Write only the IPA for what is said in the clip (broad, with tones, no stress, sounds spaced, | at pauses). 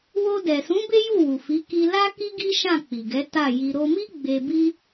w o˧ d ɛ˨ s ũ˨˦ b e˦ j u˦˨ w u˨ f i˨˦ k i˧ l a˦ k i˦ ɡ i˦ ʃ ã˦˨ k͡p i˨ ɡ ɛ˨˦ t a˦˨ j i˧ ɾ o˧ m i˦ ɡ͡b e˧ b i˦